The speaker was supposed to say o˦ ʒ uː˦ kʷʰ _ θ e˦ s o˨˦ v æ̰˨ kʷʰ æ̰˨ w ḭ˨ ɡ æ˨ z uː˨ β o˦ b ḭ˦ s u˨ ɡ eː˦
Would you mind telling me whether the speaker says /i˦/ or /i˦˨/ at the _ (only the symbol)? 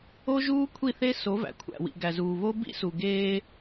i˦˨